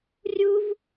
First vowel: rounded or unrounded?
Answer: rounded